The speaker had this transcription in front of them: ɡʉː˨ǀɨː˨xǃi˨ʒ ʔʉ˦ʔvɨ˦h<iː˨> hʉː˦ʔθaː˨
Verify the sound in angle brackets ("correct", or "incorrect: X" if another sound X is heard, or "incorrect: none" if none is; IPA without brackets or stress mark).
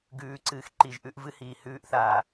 correct